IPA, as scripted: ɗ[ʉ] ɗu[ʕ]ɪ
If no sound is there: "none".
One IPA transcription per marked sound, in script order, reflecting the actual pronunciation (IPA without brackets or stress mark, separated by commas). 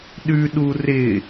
ʉ, r